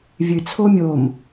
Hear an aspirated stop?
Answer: yes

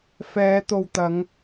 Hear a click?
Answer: no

